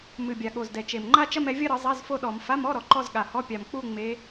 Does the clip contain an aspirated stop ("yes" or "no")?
no